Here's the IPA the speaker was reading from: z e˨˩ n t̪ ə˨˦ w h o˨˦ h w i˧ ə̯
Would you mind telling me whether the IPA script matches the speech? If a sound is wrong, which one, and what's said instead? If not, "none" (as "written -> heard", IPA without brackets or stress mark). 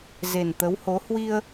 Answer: none